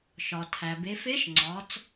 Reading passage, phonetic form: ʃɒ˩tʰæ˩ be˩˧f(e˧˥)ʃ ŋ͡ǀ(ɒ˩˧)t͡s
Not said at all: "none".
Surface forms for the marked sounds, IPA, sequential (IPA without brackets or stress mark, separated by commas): e˧˥, ɒ˩˧